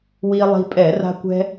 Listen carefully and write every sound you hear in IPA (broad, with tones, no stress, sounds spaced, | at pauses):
w i˧ lˠ i̤˧ pʼ ɛ˧˩˧ r a̤˧ kʷ ɛ̤˧